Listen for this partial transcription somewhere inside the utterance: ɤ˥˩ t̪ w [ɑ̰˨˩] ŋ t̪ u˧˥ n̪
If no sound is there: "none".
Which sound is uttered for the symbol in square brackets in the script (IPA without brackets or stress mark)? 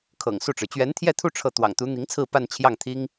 ɑ̰˨˩